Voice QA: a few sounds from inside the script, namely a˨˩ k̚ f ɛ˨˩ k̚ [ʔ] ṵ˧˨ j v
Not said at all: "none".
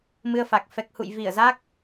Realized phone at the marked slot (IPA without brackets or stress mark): h